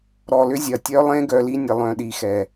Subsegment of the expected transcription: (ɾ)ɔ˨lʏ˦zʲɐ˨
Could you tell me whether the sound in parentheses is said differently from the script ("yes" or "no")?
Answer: no